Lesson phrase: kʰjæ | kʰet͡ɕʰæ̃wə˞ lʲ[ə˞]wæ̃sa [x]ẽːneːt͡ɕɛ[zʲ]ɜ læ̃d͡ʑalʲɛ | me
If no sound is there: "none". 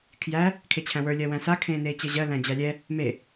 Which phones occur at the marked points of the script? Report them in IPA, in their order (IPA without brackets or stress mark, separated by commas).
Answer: ɜ, kʰ, ʑ